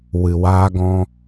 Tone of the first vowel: low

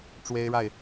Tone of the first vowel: high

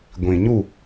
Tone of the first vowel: low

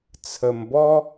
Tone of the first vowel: low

